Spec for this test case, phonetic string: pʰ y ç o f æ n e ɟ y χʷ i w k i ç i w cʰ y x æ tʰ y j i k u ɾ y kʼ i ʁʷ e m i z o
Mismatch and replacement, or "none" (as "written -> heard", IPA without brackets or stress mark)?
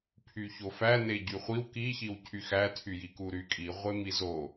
none